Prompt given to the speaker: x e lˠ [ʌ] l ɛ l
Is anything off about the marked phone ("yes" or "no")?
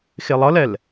no